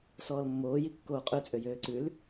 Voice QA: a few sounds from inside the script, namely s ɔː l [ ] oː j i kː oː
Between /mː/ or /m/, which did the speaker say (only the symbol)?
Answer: mː